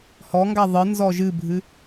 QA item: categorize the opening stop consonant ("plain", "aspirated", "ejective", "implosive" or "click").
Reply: plain